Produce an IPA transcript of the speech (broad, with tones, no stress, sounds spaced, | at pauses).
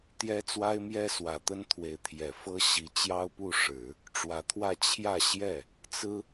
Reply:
t̪ j ɛ˥ t͡s w a˥ ɪ̯ m j ɛ˥ s w ä˨˩ t̪ ə˥ n t̪ʰ w e˧˥ ɪ̯ t̪ʰ j ɛ˨˩ f ɤ˥ ɕ i˧˥ t͡ɕ j ɑ˥ ʊ̯ p u˥˩ ʂ ɻ̩˨˩˦ | ʈ͡ʂ w ä˧˥ t̪ʰ w ä˥˧ t͡ɕʰ j ä˥˧ ɕ j ɛ˥˩ | t͡s ɹ̩˥